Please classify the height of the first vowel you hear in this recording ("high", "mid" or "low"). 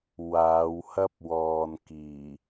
low